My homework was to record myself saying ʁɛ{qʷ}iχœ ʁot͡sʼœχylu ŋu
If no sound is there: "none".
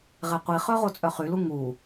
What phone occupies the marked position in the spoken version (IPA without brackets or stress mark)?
qʷ